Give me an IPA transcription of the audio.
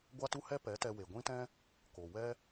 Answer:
ɡʷ a˦ t u˦ h ɛ˦ p ɛ˨˦ t ɛ˧ w e˨ ɡʷ ĩ˦ t ɛ̃˦ | k o˨ w ɛ˦

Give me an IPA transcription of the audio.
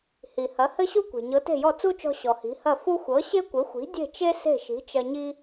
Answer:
h i˩ h ɐ˩˥ h ɘ˥ ɕ u˥ kʷ e̤˩ ɲ ɤ˩˥ t e̤˥˩ j ɔ˥˩ t͡s u˥ t͡ʃ ɔ̤˧ ɕ ɔ˩ h i̤˩˥ h ɐ˥˩ f u˥ xʷ ɤ˩˥ ɕ e˥ kʷ ɘ˩˥ xʷ i̤˩˥ dʲ e̤˥˩ t͡ʃ e˥ s e̤˥˩ ʃ i̤˩˥ t͡ʃ ɐ˧ ɲ i˧

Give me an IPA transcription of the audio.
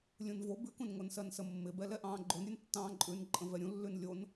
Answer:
lʲ ũ n v o b ʉ k ũ n ŋ o n s ɜ n s ə mː ɪ b ɛ l ɛ ʔ ɑ̃ː ɡ͡ǃ o n ɾʲ ʉ n tː ɑ̃ː ǃʼ ʉ n ǃʼ ə̃ v ɛ ɾʲ ũ lː ʉ n lʲ o n

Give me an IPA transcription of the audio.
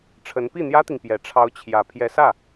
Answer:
ʈ͡ʂʰ ə˧˥ n p i˥˩ n̪ j ä˥ t̪ i˨ ŋ p j ɛ˨˩ ʈ͡ʂʰ ɑ˧˥ ʊ̯ t͡ɕʰ j ä˨˩ pʰ j ɛ˧˥ s ä˥˩

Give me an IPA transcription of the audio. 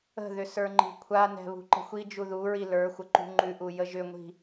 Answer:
ə̤ ð ʏ s ə˞ ŋ͡ǃ i̤ kʷʰ a n ɛ̤ β ṳ ǃ ə̤ xʷ i d͡ʒ u ð u ɹ i l ə˞ xʷ ə ǃ ṳ ŋ͡ǃ ʉ ʔ u j ə ʒ ʏ ŋʷ i̤

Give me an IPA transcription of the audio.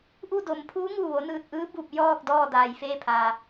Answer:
ʔ u˥˨ d o˩˧ m pʰ uː˧˥ ŋ uː˧˩ ʋ o˩˧ n ɯː˧˩ t̚ ʔ ɯː˧˥ b u˧˩ p̚ j ɔː˥˨ k̚ d ɔː˥˨ d aː˩ j f eː˥˨ pʰ aː˩

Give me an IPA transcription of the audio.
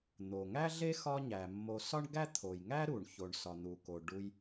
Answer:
n̪ o˩ ŋ æ˥ ɮ e˥ x ɒ˥ ɲ æ˩ mː o˧ s ɒ˥ ɳ ɡ æ˥ t̪ʰ o˩ j ŋ æ˥ ɾ u˩ ɳ ç o˩ ɳ s ɒ˩ n̪ u˩ k o˩ ɖ u˧ j

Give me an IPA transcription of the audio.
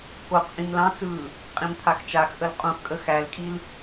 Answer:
k o q ʔ ĩ m l ɑ̃ t͡s ɯː | qʼ ĩ m t̪ʰ a x t͡ʃ a x ʔ ə l qʼ ũ x kʼ ə x æ l kʼ i l

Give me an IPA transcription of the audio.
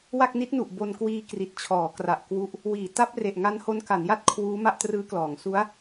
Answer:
w a˥˩ k̚ n i˦˥ t̚ n u˨˩ ʔ b o˧ n k w iː˧ k r i˨˩ t̚ t͡ɕʰ ɔː˩˦ k r a˨˩ ʔ k w u˦˥ ʔ | w iː˩˦ t a˦˥ p̚ r e˨˩ ʔ ŋ a˦˥ n h o˦˥ n k a˩˦ n j a˥˩ t̚ kʰ w uː˦˥ m a˥˩ ʔ t r ɯː˦˥ k l ɔː˩˦ ŋ s u˦˥ a̯

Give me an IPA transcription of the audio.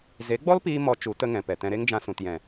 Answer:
z e˨˦ ɡ͡b ɔ˦ l p iː˧ m ɔ˦ t͡ʃ u˨˦ t ə˧ ŋ ɛ̃˨ p ɛ˨ t ɛ̃˧ ɾ e˦ ŋ d͡ʒ ã˧ s ũ˨ t j ɛ̃˨

